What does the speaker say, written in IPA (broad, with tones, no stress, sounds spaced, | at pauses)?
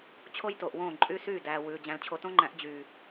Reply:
t͡ɕʰ o˦ j t o˨ ʔ w õː˦˨ ǃʼ y˦ s yː˦˨ d æː˨ w ʉː˨ d͡ʑ æ̃˨ l t͡ɕʰ o˨ t õ˦ ŋ͡ǃ æ̃˨˦ ʔ d͡ʑ yː˨